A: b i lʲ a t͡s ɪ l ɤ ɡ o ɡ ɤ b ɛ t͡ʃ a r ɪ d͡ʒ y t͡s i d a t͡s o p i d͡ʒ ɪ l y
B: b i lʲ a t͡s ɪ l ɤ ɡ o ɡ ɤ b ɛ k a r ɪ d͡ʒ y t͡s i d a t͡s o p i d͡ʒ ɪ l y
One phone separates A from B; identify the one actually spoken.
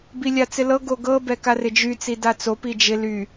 B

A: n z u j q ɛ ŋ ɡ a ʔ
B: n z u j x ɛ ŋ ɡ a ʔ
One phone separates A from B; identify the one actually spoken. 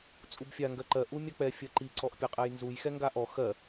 B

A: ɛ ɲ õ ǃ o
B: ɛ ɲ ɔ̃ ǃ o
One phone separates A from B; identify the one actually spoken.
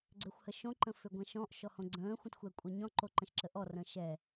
B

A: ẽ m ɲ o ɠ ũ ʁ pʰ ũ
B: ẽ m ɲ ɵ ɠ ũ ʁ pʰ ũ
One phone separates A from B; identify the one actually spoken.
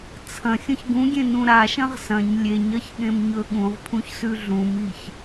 B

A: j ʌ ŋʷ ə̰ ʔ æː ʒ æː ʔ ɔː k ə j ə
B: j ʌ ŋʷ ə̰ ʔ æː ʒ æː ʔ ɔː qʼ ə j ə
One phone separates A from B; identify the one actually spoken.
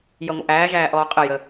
B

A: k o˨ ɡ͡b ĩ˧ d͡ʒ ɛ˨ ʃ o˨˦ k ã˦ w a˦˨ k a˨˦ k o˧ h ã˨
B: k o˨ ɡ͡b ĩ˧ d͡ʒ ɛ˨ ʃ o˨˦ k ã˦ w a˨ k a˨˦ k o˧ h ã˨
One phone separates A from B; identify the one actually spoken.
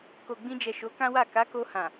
A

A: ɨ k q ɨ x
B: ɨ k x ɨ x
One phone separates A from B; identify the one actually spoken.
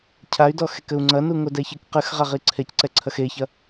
A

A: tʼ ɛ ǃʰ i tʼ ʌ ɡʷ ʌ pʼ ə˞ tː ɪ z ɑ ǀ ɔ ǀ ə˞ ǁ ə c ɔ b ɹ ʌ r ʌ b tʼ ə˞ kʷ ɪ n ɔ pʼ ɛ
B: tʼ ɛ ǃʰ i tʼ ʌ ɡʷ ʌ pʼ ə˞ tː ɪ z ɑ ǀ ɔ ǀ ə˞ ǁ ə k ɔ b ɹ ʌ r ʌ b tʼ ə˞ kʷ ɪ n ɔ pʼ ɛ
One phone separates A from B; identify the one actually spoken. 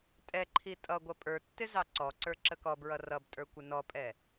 B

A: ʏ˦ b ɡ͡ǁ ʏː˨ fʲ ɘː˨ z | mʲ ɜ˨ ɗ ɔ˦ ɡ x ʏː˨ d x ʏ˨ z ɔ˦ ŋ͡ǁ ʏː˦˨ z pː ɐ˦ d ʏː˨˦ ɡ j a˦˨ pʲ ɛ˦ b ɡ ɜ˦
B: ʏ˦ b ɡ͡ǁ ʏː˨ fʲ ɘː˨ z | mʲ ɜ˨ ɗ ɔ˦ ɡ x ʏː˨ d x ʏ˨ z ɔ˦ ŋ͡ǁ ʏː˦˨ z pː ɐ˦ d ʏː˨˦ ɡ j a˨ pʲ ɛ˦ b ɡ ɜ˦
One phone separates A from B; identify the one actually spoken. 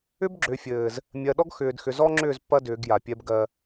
B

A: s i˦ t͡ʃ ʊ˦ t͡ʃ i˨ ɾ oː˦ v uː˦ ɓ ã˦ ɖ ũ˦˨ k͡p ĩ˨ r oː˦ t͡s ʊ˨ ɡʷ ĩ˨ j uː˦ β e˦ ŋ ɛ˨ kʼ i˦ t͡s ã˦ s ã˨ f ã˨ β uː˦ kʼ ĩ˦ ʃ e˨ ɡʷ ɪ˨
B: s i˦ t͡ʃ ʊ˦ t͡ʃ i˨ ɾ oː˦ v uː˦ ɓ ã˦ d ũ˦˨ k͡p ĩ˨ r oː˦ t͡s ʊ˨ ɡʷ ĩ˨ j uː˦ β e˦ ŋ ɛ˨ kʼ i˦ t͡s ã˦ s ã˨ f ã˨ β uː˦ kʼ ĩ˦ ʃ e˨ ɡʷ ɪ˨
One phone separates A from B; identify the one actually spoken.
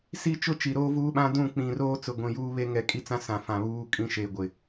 B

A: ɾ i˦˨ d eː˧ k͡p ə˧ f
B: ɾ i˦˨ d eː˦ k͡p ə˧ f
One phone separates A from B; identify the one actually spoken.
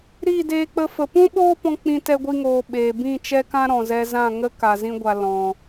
A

